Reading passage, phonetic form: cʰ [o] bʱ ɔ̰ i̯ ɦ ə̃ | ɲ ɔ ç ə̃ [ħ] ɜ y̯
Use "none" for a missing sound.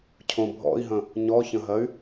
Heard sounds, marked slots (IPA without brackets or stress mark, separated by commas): õ, ɦ